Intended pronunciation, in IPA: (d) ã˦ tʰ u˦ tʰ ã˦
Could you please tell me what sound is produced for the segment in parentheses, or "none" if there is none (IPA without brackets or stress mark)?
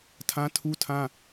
tʰ